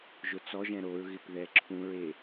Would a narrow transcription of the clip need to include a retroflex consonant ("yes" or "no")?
no